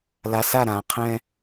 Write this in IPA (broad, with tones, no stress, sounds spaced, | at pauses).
l a˨ s a˦˨ ɾ ã˨ qʰ ɛ̃˦